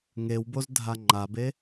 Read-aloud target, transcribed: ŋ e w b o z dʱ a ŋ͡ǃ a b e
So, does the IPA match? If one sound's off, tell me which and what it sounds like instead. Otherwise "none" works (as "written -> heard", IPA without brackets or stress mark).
none